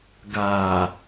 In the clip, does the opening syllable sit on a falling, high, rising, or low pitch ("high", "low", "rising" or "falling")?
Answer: low